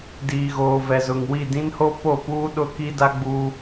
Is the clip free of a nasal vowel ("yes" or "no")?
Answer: no